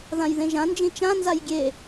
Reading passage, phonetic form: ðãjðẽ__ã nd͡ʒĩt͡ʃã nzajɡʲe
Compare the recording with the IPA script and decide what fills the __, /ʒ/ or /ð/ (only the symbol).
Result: ʒ